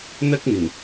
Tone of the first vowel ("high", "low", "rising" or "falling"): high